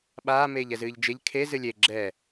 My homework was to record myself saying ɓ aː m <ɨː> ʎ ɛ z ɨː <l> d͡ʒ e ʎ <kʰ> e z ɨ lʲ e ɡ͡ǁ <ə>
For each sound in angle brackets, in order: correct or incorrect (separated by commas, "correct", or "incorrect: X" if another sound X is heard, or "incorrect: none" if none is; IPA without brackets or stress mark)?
incorrect: eː, incorrect: ʎ, correct, incorrect: ɛ